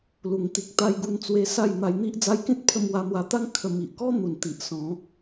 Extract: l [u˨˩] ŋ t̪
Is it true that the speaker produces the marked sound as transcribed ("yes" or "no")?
yes